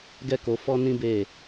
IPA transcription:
ɡ ɛ˦ k o˧ f ɔ˦ n ĩ˦ b e˦˨

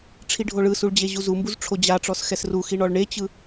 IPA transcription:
ʈ͡ʂʰ i ɖʱ o ɭ ɯ s u ɭ d͡ʑ e ʑ u z u m b u z ʈ͡ʂʰ o d͡ʑ a ʈ͡ʂ ɔ s x ɛ s r u x i ɳ ɔ ɭ ɳ e t͡ɕ ɯ

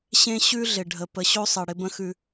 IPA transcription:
ɕ ẽ˦ ɕ ʉ˦ ɮ ɪ˨ ɖʱ ə˨ p ə˨ ɕ o˦ sˤ ɘ˨ ɽ ɪ˦ b ə̃˦ x ʉ˦

